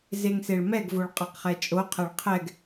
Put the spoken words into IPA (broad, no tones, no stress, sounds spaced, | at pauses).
z e ŋ s e ɭ m ɛ ɡ v o ɭ qʼ a q χ ɛ t͡ʃʼ o qʰ ɛ ɭ qʰ ɛ ɡ